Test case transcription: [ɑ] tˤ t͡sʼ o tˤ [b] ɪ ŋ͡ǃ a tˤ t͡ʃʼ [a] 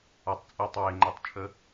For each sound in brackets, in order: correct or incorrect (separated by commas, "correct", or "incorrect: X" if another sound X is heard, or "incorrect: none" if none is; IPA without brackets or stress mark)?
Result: incorrect: a, incorrect: w, incorrect: ə